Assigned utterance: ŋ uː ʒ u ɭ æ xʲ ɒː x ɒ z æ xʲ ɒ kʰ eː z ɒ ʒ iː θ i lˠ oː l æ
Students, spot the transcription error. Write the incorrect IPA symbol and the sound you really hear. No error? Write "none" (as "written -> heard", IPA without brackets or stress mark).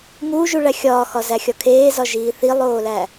none